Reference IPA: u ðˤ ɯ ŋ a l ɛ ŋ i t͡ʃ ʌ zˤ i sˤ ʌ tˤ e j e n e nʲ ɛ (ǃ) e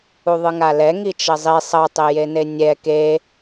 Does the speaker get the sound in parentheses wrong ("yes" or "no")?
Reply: yes